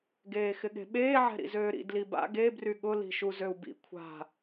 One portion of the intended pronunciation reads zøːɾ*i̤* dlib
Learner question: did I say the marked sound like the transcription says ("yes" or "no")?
no